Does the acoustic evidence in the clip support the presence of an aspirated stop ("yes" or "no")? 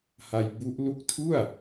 yes